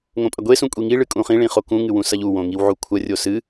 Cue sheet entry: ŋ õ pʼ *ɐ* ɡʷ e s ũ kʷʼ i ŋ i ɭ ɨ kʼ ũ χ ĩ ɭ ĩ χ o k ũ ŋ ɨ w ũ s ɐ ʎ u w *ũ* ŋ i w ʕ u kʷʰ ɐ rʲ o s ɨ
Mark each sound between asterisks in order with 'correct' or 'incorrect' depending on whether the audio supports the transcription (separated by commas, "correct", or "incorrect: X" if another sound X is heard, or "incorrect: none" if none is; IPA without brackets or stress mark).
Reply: correct, incorrect: õ